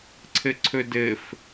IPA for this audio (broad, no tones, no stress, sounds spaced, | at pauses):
ǀʰ ɘ ǀʰ ɵ d ɘ f